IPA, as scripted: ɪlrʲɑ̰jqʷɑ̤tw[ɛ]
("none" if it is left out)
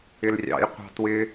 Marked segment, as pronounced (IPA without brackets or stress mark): ɪ